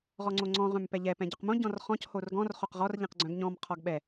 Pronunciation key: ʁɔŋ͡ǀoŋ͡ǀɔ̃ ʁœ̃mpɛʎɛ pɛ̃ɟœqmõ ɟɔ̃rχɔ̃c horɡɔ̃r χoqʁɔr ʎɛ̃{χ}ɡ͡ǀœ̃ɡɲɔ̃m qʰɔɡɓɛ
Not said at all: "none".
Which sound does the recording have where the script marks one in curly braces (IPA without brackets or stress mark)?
q